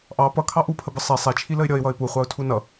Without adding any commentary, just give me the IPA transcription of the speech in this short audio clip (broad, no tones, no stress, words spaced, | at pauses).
ʔɑ pʌkʰɑ ʔupʰəbə sˤi sˤɛt͡ʃʰiləɪ̯ ɾʲʌɪ̯wʌɪ̯ puχʷɑʊ̯tʰu nʌ